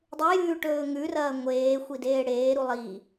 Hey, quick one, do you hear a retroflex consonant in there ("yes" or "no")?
yes